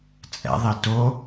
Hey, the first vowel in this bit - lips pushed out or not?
no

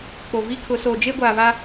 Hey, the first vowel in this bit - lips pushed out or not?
yes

